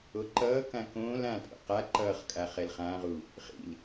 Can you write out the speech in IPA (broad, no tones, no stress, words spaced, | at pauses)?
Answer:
oǃʌːkã kõːl ãtʼo̰ qa ǃʌːχkʼa χɛlχãʁu | χḭl